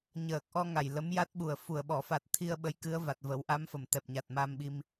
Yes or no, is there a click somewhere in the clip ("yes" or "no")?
no